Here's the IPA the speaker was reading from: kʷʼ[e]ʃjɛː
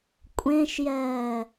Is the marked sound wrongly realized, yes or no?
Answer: yes